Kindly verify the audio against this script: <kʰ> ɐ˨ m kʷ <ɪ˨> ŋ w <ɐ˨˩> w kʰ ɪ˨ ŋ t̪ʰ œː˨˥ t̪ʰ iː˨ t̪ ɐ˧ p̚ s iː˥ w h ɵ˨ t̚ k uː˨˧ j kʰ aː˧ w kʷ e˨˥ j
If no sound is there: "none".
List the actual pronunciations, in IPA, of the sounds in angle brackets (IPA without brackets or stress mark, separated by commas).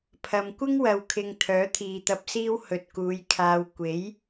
pʰ, ɪ˥, ɐ˨